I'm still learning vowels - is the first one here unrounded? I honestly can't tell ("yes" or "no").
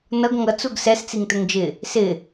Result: yes